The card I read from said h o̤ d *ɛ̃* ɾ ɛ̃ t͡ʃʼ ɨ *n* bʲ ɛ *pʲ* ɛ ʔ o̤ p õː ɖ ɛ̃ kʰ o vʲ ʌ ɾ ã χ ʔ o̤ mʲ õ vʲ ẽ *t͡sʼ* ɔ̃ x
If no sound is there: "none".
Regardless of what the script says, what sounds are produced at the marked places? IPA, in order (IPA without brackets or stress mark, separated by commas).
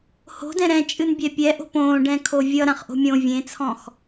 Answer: ɛ̃, n, pʲ, t͡sʰ